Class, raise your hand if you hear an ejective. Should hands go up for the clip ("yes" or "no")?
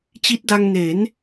no